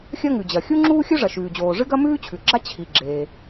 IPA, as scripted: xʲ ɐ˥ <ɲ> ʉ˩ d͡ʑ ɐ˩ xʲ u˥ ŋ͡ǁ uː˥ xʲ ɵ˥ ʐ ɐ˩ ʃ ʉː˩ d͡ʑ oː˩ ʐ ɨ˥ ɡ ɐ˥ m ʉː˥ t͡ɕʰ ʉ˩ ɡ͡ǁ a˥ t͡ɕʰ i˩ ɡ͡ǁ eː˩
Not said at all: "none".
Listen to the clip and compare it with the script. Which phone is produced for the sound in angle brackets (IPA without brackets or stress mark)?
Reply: ŋ